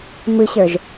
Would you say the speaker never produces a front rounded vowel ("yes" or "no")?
yes